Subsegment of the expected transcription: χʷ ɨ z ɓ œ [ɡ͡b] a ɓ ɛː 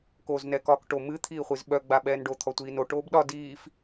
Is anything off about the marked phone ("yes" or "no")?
no